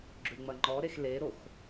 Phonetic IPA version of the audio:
ɡ͡ǁ ʉ ŋ͡m ɐ ŋ͡ǃ ɔ ɾ e x l e ɾ o x

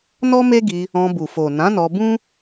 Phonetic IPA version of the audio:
n ɔ˦ m e˦ ɡ i˧ | ɔ̃˧ b u˨ f o˨ n ã˨˦ n ɔ˧ b ũ˦

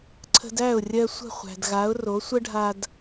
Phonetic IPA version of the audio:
ǀʰ ə̤˧ d æ˥˩ ʊ̯ rʲ ɜ˧ sʷ ə̤˥˩ χʷ æ̤˩ d ɣ a˩˥ ʊ̯ r o˩˥ sʷ ə˥ ɖʱ a˧ d

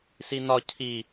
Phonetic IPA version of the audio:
s i n ɒ cʰ i

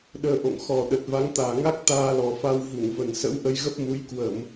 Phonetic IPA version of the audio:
ɗ əː˧ ʔ o̰˧˨ ŋ x ɔ˨˩ ɗ ə˨˩ t̚ v a˨˦ ŋ t̪ aː˨˩ ŋ a˦˥ k̚ t̪ aː˧ l ɔ˨˩ f a˧ w v u˧˩ ŋ v ə˨˩ n s ə̰˧˥ w ʔ ə˧ j ɣ ə˦˥ p̚ m u˨˦ j k w ə˧˩˨ m

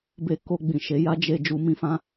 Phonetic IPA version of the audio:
b e˧ k o˧ ɡ͡b ĩ˨ ʃ e˨˦ j a˦ d͡ʒ e˧ d͡ʒ u˧ m ĩ˦ f ã˦

